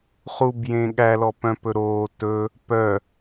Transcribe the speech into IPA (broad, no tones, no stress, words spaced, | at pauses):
χubjẽ ɠælɔpœ̃pɵ ɾoː tɵ | pœ